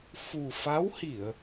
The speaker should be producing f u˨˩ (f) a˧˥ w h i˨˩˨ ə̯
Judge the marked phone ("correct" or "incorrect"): correct